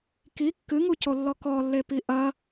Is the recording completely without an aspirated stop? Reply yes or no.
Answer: yes